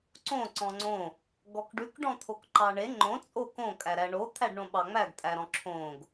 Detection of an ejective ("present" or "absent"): present